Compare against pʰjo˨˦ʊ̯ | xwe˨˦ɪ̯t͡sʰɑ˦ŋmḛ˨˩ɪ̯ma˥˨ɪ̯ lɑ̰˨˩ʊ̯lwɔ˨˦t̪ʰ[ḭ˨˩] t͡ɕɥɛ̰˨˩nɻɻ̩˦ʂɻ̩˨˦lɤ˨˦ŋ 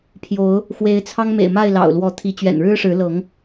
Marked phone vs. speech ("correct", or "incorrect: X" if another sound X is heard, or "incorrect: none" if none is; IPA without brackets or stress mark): incorrect: i˨˦